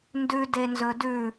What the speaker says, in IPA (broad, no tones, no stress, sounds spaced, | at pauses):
n d ʉ d e n z ɵ d ʉ